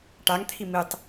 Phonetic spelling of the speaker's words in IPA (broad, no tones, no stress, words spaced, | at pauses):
ʈaŋt̪ʰi mitˤ